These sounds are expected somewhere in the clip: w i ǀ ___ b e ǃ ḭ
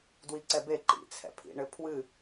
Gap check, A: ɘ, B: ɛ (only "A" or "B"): B